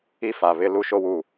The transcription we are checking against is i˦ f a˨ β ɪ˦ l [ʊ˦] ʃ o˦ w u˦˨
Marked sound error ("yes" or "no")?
yes